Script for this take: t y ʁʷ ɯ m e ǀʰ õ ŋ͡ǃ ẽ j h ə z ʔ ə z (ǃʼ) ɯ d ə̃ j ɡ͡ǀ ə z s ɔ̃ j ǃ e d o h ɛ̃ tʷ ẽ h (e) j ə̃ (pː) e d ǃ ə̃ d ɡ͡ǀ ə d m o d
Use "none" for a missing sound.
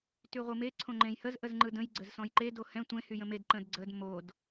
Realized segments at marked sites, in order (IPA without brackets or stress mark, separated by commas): ŋ͡ǃ, y, m